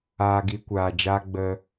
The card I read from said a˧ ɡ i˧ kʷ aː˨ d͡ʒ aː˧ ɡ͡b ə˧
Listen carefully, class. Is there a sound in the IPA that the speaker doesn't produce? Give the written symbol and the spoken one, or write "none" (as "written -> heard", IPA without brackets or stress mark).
a˧ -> aː˧